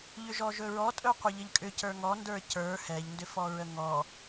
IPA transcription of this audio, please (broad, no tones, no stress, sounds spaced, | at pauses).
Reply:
ʎ ʏ ʒ ɔ ʒ ɵ ɹ ɔ tʼ ɵ qʷ ə ʎ ɘ ʎ kʼ ʏ c ə˞ ŋ ɔ n d ə˞ c ə˞ h ɛ ʎ n d ʏ f ɔ ɹ ə ŋ ɔ